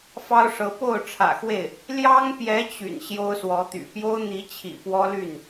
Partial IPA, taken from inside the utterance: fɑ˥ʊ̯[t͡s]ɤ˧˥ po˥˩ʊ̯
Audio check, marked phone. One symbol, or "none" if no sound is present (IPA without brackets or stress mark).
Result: ʂ